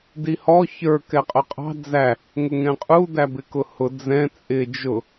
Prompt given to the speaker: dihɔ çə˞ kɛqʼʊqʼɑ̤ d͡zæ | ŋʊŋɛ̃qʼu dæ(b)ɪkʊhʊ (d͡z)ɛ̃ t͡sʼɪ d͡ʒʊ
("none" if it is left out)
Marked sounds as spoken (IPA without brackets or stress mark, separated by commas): b, d͡z